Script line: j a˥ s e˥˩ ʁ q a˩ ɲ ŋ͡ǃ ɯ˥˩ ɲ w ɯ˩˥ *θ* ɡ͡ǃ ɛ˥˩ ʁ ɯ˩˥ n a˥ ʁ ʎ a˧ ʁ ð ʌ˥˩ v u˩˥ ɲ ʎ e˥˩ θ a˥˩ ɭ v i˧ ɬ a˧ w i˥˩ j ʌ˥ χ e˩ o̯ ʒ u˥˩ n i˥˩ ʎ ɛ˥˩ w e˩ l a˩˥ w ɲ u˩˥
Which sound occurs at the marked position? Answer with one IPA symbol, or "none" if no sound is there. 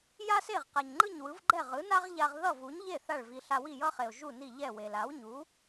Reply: v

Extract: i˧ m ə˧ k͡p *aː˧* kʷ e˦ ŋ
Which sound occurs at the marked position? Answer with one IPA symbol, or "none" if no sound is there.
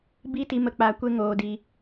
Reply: aː˧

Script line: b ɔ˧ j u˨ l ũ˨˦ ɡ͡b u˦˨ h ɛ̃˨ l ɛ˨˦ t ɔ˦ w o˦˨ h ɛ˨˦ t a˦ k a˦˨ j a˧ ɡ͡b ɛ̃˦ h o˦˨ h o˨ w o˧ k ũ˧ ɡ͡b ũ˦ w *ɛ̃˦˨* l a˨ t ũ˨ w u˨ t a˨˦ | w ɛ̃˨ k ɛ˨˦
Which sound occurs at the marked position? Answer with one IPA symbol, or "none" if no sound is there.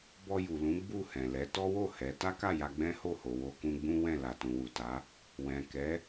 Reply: ɛ̃˦˨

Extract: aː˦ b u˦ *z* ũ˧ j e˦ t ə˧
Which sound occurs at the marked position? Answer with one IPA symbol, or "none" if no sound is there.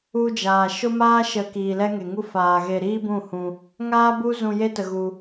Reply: z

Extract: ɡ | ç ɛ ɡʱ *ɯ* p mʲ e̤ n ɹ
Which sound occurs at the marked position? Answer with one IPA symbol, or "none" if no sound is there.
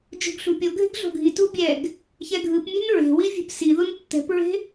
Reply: ɯ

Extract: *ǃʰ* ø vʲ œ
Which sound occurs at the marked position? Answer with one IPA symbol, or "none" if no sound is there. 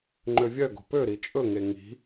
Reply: ŋ͡ǃ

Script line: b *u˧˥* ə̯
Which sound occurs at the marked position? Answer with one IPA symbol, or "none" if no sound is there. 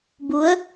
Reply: u˧˥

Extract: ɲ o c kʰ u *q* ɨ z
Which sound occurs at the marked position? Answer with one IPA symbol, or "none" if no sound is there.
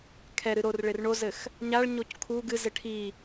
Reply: ɡ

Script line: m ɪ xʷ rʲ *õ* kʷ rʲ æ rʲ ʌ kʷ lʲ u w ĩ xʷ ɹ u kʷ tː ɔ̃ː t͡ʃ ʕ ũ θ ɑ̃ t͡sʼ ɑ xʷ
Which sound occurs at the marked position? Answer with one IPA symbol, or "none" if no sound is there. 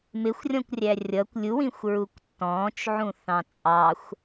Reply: ɔ̃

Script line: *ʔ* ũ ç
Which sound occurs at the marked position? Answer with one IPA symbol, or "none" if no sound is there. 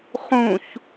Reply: χ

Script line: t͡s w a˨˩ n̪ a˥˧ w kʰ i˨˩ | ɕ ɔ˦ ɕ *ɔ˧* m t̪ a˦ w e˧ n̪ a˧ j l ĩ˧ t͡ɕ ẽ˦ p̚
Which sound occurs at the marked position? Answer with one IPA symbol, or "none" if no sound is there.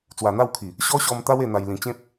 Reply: ɔ˧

